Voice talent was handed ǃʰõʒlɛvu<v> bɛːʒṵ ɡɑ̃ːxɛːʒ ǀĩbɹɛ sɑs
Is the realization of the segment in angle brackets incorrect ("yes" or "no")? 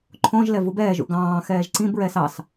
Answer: yes